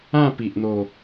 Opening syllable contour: falling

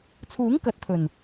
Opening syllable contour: rising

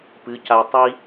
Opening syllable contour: rising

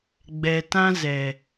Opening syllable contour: low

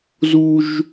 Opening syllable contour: high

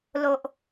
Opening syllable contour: low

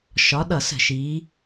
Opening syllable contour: rising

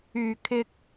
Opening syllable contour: low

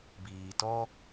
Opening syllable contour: low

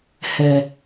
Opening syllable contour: low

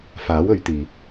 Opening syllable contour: rising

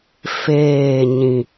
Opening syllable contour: falling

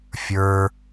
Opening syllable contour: high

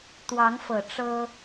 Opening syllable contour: rising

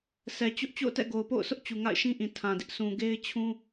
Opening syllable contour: low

